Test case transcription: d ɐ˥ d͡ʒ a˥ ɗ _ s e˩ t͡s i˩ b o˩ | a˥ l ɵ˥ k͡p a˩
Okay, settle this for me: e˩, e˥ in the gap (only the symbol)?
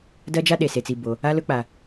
e˩